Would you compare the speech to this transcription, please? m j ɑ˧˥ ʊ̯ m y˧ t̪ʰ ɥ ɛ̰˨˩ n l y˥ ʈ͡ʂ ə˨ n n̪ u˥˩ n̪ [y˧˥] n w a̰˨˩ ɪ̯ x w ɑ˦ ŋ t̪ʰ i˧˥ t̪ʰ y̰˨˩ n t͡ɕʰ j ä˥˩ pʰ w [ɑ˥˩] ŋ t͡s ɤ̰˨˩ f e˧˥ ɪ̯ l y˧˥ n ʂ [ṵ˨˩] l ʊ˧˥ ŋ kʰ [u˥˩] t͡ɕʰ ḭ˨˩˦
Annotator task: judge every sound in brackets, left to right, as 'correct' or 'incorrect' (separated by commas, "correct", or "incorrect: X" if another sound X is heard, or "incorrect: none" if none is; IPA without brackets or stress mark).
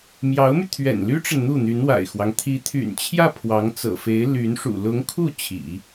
correct, incorrect: ɑ˧˥, correct, correct